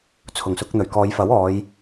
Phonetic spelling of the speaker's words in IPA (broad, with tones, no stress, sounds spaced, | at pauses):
t͡sʰ ʊ˨˩ ŋ s ʊ˧ k̚ n̪ ɵ˨˩ ɥ k ɔː˨˧ j f ɐ˨˥ w ɔː˨˧ j